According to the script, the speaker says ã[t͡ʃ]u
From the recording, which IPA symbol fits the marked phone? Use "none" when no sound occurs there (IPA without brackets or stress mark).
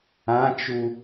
t͡ʃ